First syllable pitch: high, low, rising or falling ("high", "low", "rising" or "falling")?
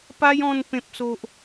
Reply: high